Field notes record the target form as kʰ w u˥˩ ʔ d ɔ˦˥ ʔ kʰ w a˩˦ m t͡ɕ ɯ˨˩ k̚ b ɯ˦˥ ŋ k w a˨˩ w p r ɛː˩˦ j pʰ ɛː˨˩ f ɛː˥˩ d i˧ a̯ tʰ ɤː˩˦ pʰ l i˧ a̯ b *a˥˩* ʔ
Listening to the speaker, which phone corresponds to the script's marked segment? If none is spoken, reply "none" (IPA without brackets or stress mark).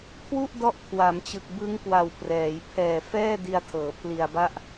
a˥˩